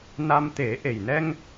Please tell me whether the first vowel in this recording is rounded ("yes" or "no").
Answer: no